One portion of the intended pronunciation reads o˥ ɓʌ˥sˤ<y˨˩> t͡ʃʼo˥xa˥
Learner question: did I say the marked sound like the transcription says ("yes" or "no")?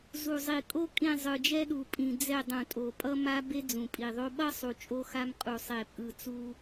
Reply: no